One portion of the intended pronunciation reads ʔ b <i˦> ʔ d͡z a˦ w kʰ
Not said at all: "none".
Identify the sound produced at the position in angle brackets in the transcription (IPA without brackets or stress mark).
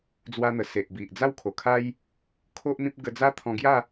i˨